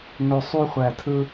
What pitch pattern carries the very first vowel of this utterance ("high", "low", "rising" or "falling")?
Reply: low